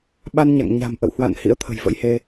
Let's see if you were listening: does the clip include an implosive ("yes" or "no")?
yes